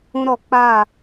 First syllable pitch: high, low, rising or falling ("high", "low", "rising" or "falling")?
high